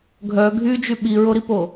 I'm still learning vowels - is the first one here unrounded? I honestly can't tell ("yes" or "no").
no